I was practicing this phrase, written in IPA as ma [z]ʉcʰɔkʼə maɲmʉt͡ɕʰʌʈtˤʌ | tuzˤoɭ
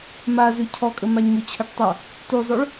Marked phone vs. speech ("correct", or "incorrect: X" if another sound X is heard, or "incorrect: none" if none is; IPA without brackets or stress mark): correct